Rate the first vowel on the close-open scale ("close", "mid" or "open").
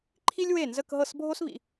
close